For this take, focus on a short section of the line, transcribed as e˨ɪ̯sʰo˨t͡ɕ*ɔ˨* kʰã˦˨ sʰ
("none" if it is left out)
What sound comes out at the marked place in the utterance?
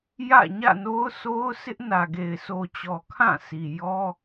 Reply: ɔ˨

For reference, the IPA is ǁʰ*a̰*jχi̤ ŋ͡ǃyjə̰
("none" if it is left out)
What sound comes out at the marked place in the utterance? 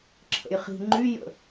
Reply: ə̰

